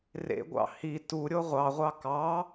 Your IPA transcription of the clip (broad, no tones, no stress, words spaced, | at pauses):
rḛɡʷɑ̰ hi tuɾʲo ʁʷɑʁʷɑ kɑ